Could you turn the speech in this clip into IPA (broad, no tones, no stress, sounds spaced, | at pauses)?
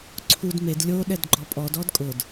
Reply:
ǀʰ u d m e d lʲ o ɗ ɛ d ɡ͡ǃ ɔ pʼ ɔ d ɔ d kʼ ʊ d